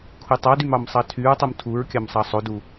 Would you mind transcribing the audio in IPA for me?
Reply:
kʰ u tˤ ɑ d y m ɑ m sˤ ɑ tʰ y ɹ tˤ u m tʰ u ɹ kʲ ɑ m sˤ ɑ sˤ o d u

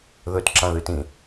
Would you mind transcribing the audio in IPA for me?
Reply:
ð ɵ t ǁ ã ð ɨ t ĩ

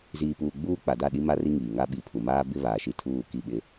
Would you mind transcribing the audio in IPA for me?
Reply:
z iː˨ p uː˨ ɡ͡b uː˦ k͡p a˨ d a˦˨ ɗ i˦ m a˦ r i˦ ŋ iː˨ ŋ a˦ ɓ i˨˦ pʰ u˨ m aː˦ b ɪ˦ β aː˨ ʃ i˦ tʰ uː˦˨ k i˦˨ ɓ ɪ˦

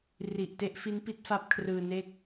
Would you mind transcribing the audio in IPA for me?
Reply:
r i˨˩ ʔ t e˦˥ ʔ f i˦˥ n p i˦˥ t̚ f a˦˥ p̚ kʰ r ɯː˧ n e˥˩ k̚

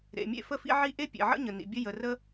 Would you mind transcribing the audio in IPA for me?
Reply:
ɾ ḛ˩ mʲ ḛ˥ f ə˥ f ḭ˥ ʕ i˥ ʔ e˥ pʲ ḛ˩ ʕ ə̰˥ ɲ ə˩ n ḭ˩ bʲ ə˥ j ə˩ r ə˥

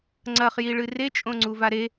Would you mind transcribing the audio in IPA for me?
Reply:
ŋ͡ǀ ɐ χ j i ɭ ɨ r e t͡ʃʼ õ ŋ͡ǀ u v a ɾ e

